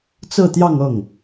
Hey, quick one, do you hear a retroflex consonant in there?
no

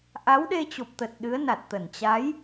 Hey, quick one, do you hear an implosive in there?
yes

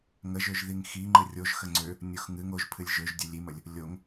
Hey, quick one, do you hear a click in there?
yes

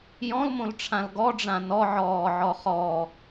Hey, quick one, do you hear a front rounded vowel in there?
no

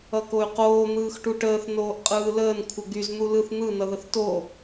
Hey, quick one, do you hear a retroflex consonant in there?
yes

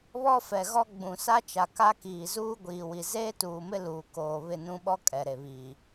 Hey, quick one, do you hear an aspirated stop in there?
no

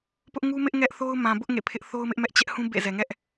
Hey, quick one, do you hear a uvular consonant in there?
no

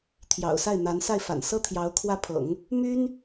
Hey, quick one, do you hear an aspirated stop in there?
yes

